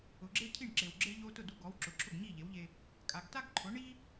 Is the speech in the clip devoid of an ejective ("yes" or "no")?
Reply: no